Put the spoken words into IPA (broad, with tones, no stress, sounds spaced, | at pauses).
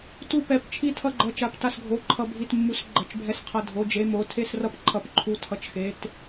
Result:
t u˧˩ p ɛ˩˧˩ p t͡ʃʰ i˧˩ tʰ ʌ˧˩ ɡ͡ǃ ʌ˩˧˩ t͡ʃ a˩˧˩ p t a˧˩ s ɡʱ o˩˧˩ ǃʰ ʌ˧˩ bʱ i˧˩ t mː u˩˧˩ s ɡ͡ǃ ʌ˩˧˩ t͡ʃ bʱ ɛ˧˩ s qʰ ʌ˧˩ dʱ o˩˧˩ d͡ʒ e˩˧˩ m o˩˧˩ tʰ e˧˩ s r ʌ˧˩ p ǃʰ ʌ˩˧˩ p ǃʰ u˩˧˩ tʰ ʌ˩˧˩ t͡ʃ x e˩˧˩ t